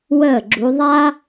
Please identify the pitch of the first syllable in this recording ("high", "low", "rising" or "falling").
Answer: falling